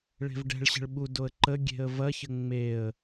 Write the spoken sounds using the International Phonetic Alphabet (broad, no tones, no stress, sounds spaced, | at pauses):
ɭ e̤ v ɖ ɛ̤ ɭ ɕ ə̤ ɭ ɓ u d o ə̯ ǃ ə ɡʲ e̤ ə̯ v ɐ ç ə ŋ͡m e ə̯